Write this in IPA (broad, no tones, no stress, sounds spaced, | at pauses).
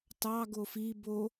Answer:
t ɑ ɡ o f i b o